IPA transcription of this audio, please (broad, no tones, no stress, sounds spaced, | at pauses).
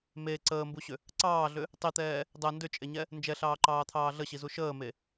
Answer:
m e ǀ əː m b u ɕ ʏ | ǀ ɑː ɮ ʏ | tˤ i t̪ ɛː | dˤ ɛ n d ʏ t͡ʃʼ e ɲ ɛ | n d͡ʒ ɛ ɬ ɑː ǃ ɑː t̪ʰ ɑː ɮ ə ɕ i z u ʃ əː m e